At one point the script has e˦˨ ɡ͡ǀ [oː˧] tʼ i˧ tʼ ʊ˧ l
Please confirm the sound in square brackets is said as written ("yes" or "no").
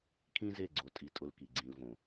no